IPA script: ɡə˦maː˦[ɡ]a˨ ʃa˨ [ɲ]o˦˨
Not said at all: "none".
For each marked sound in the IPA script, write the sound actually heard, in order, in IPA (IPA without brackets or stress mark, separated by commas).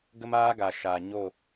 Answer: ɡ, ɲ